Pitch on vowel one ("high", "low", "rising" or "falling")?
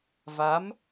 rising